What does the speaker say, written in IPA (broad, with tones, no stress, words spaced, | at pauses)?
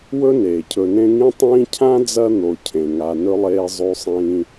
wɵ˥neː˩cʰɵ˨nẽ˦ ŋĩ˥tˤĩː˥ cʰã˥d͡zɐ˦ n̪o˨cʰẽ˩ ŋa˨nɵ˥lˠeː˦ zˤʉ˦sˤĩː˦